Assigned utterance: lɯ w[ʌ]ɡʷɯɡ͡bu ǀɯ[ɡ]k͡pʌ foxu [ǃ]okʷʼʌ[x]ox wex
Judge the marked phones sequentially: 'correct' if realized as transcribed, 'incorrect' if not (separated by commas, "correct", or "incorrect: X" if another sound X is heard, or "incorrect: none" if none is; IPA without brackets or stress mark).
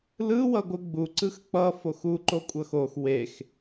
correct, incorrect: x, correct, correct